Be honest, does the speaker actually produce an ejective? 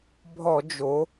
no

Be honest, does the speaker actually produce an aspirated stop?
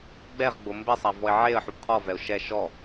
yes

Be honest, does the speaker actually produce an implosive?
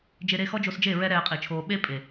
yes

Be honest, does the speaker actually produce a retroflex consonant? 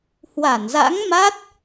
no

